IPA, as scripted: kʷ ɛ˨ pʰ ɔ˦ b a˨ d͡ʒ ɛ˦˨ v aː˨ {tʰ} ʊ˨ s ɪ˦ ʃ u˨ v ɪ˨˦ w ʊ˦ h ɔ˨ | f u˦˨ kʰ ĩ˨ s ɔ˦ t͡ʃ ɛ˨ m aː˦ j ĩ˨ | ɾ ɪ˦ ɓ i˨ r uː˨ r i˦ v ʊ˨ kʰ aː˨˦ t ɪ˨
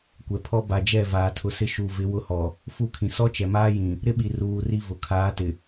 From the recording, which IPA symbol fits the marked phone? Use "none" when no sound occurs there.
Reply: tʰ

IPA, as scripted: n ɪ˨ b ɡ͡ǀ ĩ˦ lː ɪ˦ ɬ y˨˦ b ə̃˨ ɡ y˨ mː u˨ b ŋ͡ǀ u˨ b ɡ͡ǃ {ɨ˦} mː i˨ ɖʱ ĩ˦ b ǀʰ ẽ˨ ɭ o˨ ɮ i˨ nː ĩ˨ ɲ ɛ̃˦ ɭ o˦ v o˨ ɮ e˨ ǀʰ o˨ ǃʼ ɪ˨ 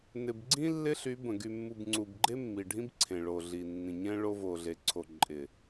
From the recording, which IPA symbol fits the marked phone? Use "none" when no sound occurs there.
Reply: e˦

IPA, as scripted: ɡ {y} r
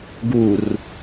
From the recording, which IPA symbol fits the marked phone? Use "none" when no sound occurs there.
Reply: u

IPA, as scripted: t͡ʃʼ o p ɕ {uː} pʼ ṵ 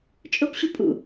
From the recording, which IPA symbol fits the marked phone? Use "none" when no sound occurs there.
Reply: u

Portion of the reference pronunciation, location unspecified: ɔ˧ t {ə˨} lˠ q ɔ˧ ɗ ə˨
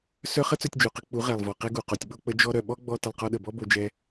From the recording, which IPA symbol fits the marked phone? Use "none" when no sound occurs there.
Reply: ə˨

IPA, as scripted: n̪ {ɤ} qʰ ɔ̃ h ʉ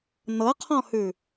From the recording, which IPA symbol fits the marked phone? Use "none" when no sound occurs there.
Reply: ɤ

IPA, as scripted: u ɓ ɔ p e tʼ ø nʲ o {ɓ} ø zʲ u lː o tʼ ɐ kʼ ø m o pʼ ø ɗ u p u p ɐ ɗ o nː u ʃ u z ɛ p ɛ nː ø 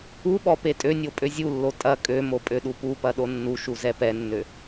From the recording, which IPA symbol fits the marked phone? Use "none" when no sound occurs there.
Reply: pʼ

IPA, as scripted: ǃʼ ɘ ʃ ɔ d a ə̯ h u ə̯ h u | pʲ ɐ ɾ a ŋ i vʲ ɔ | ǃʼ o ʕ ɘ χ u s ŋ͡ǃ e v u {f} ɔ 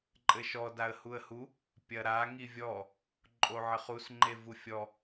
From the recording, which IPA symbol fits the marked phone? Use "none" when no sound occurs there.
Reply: fʲ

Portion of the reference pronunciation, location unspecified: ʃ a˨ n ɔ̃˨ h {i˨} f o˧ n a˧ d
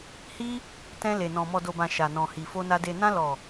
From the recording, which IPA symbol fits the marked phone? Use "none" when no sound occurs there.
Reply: i˨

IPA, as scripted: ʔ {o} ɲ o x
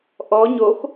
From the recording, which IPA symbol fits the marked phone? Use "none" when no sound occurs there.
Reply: ɔ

